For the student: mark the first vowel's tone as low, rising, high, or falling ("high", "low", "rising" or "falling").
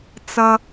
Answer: high